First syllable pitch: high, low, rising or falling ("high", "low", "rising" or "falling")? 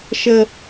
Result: low